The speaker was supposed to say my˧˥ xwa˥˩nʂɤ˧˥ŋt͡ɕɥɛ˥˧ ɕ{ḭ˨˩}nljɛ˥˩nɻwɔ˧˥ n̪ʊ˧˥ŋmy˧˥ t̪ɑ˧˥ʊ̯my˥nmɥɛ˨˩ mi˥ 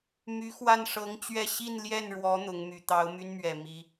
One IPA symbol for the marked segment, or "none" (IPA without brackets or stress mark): i˥˧